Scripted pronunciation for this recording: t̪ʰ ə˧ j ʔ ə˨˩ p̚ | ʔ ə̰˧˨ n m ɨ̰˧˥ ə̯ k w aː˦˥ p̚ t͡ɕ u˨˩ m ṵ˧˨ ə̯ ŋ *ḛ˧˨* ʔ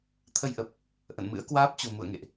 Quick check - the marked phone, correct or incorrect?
correct